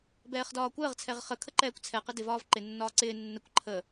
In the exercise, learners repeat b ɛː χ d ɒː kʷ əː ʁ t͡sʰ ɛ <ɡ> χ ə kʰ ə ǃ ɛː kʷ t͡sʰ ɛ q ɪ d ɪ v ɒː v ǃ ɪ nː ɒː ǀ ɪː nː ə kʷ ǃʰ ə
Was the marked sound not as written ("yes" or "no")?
yes